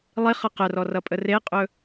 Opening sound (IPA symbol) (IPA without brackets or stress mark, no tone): lˠ